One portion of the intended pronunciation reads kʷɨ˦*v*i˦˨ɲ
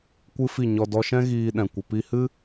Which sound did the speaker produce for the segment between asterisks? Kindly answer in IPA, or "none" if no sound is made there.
f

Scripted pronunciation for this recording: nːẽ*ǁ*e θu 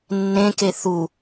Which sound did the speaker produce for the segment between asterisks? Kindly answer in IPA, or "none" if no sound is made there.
k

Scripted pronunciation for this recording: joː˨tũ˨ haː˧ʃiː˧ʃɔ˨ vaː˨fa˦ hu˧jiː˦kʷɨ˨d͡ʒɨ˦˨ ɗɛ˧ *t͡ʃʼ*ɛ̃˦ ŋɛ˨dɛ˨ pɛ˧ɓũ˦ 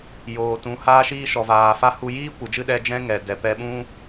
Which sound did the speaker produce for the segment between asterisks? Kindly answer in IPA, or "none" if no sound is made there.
d͡ʒ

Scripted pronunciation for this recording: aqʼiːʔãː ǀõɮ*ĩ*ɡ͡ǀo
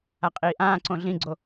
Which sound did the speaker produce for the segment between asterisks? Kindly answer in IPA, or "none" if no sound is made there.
ĩ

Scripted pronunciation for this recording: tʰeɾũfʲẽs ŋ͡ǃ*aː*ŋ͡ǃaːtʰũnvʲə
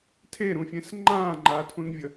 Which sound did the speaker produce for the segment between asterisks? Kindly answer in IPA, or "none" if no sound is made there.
ãː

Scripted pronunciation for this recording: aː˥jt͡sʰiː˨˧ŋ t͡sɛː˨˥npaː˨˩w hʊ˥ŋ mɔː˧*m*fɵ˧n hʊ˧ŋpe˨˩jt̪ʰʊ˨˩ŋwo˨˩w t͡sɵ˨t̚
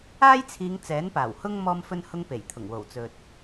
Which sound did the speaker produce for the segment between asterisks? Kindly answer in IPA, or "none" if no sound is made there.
m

